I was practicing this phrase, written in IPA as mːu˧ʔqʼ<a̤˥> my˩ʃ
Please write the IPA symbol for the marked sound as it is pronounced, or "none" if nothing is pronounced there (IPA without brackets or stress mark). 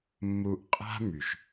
a̤˥